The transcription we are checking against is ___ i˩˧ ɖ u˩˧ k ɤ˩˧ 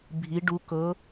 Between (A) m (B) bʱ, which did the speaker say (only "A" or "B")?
B